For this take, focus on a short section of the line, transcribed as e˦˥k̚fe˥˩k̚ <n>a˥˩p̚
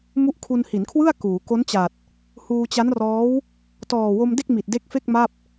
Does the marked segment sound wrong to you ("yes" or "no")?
yes